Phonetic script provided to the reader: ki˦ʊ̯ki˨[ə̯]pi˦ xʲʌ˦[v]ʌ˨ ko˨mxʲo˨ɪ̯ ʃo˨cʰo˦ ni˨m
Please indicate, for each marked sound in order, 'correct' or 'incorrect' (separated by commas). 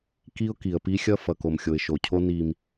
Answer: correct, incorrect